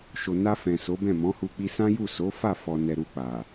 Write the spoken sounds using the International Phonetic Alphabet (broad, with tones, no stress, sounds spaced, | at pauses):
ʃ o˨ n a˧ f ɛ̃˨ s o˨˦ b ɛ̃˦˨ m ɔ̃˨˦ h u˧ k͡p i˧ s ã˦ j u˦˨ s o˨˦ f a˦˨ f ɔ˨ n ɛ˨ ɾ u˧ k͡p a˨